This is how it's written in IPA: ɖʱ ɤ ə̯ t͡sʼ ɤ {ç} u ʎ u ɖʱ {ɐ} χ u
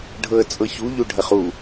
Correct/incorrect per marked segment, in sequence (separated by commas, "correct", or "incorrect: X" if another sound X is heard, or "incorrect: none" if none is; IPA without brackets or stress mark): correct, correct